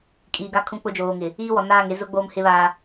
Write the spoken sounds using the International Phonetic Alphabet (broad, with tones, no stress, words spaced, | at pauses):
kʼiː˨ɡa˦kʰũ˦ k͡pʊ˦ d͡ʒoː˨ŋɪ˨ | iː˦wɔ˨ naː˦˨ŋe˦zʊ˦ɡ͡boː˦m hɪ˦βaː˦